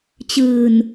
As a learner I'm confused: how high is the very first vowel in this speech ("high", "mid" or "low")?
high